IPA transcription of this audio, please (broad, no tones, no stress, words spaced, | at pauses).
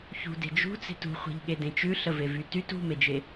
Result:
çṳde̤ d͡ʒṳt͡se̤t ṳχʷe̤ʎɠedẽ t͡ʃʉɬəvevy tyt ṳmed͡ʒe